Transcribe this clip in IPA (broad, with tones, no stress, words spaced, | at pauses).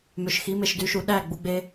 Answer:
mø˨ʃxi˨˦me˨ʃ dy˨ʃu˨ ɗæ˦˨ɡ͡bu˨ɡ͡be˦